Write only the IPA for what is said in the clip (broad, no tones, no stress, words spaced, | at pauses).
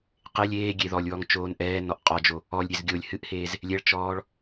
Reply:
qelʲ eː ɡʲeðɔlʲwɔŋ t͡ʃoːnʔɛːnɔʔ qʼɔd͡ʒo | ɔlʲɾʲez ɡʲolʲ hɨʔheːz | lʲɛɭt͡ʃɔːɭ